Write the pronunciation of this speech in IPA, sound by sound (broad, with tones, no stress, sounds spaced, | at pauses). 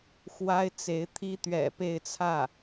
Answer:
x w a˥ ɪ̯ t͡s e˧˥ ɪ̯ t̪ʰ i˥ t̪ ɥ ɛ̰˨˩ p e˥˧ ɪ̯ t͡sʰ ä˥˩